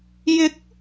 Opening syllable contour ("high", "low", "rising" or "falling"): rising